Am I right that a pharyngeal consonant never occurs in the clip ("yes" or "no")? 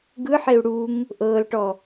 no